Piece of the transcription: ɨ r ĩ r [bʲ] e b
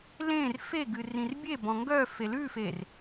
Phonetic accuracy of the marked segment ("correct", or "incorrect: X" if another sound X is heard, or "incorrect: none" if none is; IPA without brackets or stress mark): correct